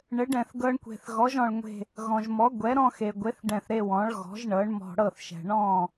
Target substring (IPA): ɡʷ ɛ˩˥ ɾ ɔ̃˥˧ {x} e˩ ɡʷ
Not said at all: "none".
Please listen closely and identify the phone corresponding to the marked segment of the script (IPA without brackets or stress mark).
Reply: x